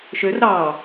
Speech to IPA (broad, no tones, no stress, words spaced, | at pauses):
ʃør ɾɑ